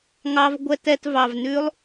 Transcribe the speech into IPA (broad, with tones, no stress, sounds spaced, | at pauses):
ŋ ɑ˧ v ɡʷ ɛ˧ t ɛ˧ t v ɑ˨ v n ʉ˦ lˠ